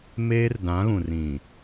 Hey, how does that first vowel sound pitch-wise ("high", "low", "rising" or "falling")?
high